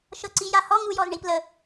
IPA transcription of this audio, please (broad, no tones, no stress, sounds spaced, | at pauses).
ʃ ɤ ǀ i j a h ɔ ŋ u j ɔ z ɳ i p l ə